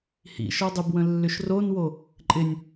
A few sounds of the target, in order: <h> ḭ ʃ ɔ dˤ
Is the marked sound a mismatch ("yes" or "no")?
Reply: no